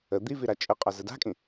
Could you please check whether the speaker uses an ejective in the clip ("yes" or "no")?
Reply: yes